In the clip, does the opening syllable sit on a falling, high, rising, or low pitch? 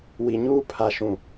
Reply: low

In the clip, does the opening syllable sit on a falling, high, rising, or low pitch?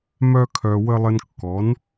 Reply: high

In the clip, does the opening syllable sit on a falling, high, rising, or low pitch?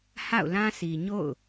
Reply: falling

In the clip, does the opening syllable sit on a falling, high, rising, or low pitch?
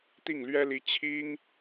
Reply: falling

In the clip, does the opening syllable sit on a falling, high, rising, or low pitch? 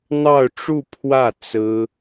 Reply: falling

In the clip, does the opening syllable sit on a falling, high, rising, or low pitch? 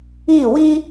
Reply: falling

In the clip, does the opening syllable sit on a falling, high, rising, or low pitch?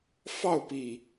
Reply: falling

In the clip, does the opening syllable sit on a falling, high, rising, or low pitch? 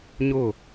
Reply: falling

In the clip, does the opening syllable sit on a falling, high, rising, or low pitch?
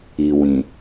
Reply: low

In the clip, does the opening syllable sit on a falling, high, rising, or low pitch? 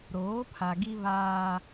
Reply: rising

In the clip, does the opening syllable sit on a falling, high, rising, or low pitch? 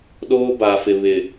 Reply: high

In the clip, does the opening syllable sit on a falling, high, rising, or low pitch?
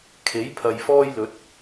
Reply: rising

